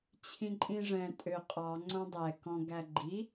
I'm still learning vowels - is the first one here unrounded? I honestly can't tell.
yes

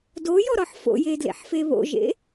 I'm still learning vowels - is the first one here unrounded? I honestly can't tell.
no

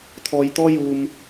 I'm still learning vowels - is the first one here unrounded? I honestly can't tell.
no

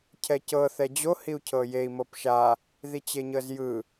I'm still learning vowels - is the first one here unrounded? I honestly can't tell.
yes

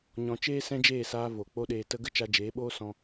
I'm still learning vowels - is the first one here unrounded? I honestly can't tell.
no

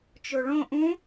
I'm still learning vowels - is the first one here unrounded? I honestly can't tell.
no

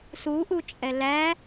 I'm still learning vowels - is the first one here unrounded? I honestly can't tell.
no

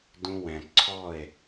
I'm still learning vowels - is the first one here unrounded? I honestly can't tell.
no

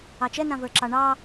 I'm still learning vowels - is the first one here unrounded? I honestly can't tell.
yes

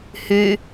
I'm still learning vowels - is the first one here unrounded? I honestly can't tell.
no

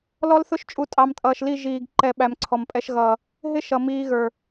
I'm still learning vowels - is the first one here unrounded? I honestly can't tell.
no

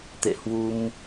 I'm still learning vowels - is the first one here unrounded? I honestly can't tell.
yes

